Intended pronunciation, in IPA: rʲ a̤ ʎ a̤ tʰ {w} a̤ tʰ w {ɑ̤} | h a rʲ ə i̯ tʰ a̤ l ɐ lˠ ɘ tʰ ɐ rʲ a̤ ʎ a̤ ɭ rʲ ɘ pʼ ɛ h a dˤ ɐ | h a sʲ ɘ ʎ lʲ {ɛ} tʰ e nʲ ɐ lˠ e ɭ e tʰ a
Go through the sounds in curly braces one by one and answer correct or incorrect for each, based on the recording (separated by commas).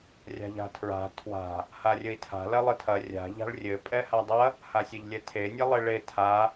incorrect, incorrect, correct